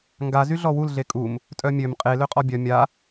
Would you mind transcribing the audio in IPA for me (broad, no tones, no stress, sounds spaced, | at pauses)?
ŋ ɡ a z y ɮ ɔ w u l ɮ e kʼ u m | tʼ œ mʲ ø m qʼ e l ø qʼ ɔ bʲ œ mʲ a